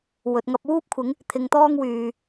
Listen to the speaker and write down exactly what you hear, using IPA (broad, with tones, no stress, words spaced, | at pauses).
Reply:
wɵ˨t̚ ŋɐ˧p̚wuː˥p̚kʷʰɪ˨˥ŋ | t̪ʰɪ˨˧ŋt̪ɔː˥ŋwyː˨